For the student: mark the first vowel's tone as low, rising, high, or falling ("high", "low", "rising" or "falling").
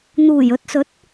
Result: low